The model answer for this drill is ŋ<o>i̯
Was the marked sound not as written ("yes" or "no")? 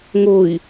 no